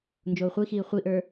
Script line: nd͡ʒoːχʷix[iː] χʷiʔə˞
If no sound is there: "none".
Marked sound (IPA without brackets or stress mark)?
iː